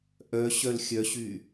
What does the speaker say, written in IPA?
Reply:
ʔ œ ɕ œ l xʲ œ ɕ y

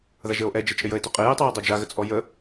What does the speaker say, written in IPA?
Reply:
ð a ʒ ə o̯ ʔ ɛ d͡ʒ ɛ t͡ʃʼ ɪ j ə e̯ t ʏ qʼ ɪ j ɪ tˤ y j ə dˤ ø d͡ʒ a ɣ ə t͡sʼ ɔ j ə

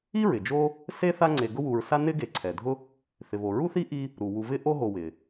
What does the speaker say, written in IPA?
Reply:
i˥ ɹ ɪ˩ d͡ʒ o˥ | s e˥ θ a˦ ŋ͡ǀ e˨ ɡ ʊ˦ w u˨ ɹ s a˦ n ɪ˥ ɡ e˨ ǀʰ ɛ˩ dʱ ʊ˦ | θ ɪ˩ v o˩ ɹ u˦ θ i˦ ʔ i˦ | ɾ u˩ w u˨ v ɪ˦ ʔ o˦ ɦ o˨ w ɪ˩

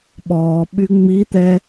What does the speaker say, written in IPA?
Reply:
ɓ ɔː ɓ y ŋ͡m i t̪ ɛ

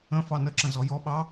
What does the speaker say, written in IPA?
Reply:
ə̃ f ɑ n ə ǁ ə̃ z ɔ j ɔ ɓ ɑ

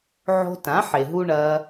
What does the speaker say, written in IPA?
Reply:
ʕ o̤˧ t ã˩˥ ħ e˩ ɦ u˧ ɳ ɐː˧

